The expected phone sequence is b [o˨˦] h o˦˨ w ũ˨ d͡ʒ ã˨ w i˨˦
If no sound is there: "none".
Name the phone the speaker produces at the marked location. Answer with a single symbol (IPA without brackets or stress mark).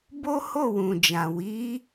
o˦